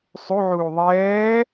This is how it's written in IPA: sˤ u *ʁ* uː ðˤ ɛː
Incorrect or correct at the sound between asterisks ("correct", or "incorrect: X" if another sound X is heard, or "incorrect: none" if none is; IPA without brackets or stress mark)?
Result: incorrect: ʕ